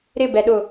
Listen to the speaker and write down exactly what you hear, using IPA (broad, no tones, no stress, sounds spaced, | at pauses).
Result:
ɾ ɪ b ɛ ɗ ʊ